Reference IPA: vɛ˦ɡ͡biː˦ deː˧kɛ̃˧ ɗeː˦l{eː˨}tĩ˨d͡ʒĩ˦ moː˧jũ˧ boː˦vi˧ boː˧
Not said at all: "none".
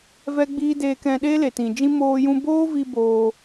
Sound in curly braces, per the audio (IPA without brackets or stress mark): e˨